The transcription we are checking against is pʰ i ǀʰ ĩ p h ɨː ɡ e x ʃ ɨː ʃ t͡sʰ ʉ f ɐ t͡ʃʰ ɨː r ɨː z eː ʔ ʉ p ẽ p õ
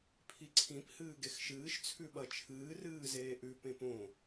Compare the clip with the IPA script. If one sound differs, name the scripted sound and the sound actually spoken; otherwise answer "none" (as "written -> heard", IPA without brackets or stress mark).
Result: f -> ɓ